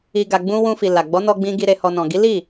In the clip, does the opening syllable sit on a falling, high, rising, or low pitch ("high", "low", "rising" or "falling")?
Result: low